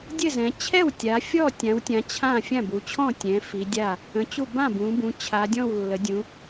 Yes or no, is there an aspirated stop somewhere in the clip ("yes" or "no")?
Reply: yes